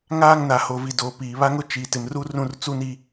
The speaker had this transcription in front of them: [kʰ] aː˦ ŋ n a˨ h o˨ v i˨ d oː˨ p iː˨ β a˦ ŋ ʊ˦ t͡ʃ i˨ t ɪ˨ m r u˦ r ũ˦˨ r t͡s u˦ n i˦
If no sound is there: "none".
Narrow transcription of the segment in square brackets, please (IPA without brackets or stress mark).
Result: ŋ